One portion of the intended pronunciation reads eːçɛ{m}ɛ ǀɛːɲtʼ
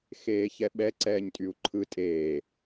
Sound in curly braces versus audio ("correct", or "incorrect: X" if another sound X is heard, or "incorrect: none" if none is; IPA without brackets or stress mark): incorrect: ɓ